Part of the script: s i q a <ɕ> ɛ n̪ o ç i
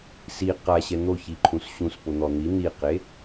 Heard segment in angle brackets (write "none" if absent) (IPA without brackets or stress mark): ɕ